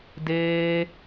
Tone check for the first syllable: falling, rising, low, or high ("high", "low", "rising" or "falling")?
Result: high